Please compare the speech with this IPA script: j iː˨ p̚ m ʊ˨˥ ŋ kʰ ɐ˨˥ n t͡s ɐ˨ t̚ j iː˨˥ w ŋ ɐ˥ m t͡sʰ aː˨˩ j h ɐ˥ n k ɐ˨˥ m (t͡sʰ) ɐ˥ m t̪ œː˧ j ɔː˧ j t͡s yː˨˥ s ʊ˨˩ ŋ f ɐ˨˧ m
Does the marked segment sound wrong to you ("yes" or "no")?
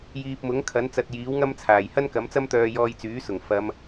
yes